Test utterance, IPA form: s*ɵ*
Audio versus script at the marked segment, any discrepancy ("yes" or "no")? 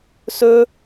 no